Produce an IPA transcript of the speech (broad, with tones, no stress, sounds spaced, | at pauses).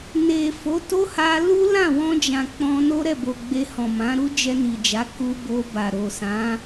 n e˨ f o˨˦ t o˦ h a˧ l u˦ l ã˦˨ w ɔ̃˧ d͡ʒ ã˨ k͡p ɔ̃˧ n o˦ ɾ ɛ˦˨ b o˨ ɡ͡b e˧ h ɔ̃˨ m ã˨˦ ɾ u˦ d͡ʒ ɛ˧ n i˨ d͡ʒ a˨˦ k u˧ b o˧ b a˨ ɾ o˨ s ã˨˦